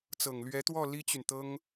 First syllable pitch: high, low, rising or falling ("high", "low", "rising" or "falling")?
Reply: low